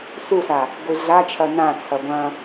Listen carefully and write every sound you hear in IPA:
s u s a | ɡʷ i ɮ a t͡ʃʰ ɐ n ã t͡sʰ ɐ ɡʷ ɐ̃

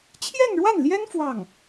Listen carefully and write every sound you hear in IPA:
t͡ɕʰ j ɛ˥˧ n ɻ w a˥˩ n l j ɛ˥ n f w ɑ˥˩ ŋ

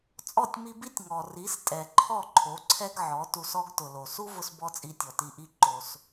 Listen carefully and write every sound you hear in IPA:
t͡sʼ ɔ˦˨ tʲ m i˧ b i˦ tʲ ŋ ɔ˨ r i˨˦ s tʼ ɛ˨ ǃʰ ɔ˦˨ ǃʰ o˨˦ ǀʰ ɛ˦ ɡ ʕ ɔ˨˦ t u˧ s ɔ˦ ɡ t ʊ˨ l o˨ s u˦ v ʊ˧ s b ɔ˦ t͡sʼ i˧ tʲ ɔ˨ t i˧ ʔ i˦ ǃ o˧ s

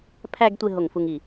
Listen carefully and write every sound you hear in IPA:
pʰ æ˧ ɡ tʷ e˥˧ ɦ o˧˩ ŋ f u˧ ŋ i˧˩

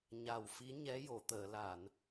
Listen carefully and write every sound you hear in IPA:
ɲ a˨˩ w f i˧˥ ɲ ɛ˧˥ j o˨˩˨ t̪ əː˨˩˨ l a˨˩˨ n

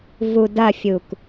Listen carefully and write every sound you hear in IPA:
v u d ɐ fʲ u k

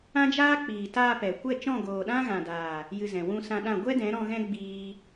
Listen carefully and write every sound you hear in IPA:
ã˦ d͡ʒ aː˦ k͡p iː˨ t aː˧ p ɛ˨ kʷ ɛ˦˨ t͡ʃ ɔ̃˦˨ ɡ oː˨ ɗ ã˦ ɣ ã˨ d aː˨ | j ɨ˧ z ɛ̃˨ w ũ˧ s ã˧ ɗ ã˦˨ ɡʷ ɛ˦ d ɛ̃˨˦ ɾ ɔ̃˧ ɣ ɛ̃˦ ɡ͡b iː˦

